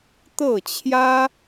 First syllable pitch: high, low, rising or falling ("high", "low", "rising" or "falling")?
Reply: falling